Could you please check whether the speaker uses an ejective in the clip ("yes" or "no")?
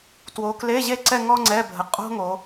yes